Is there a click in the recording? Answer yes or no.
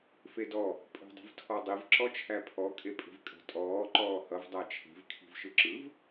yes